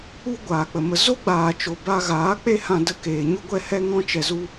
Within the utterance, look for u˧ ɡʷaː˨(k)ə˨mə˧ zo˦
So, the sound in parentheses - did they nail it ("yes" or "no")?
no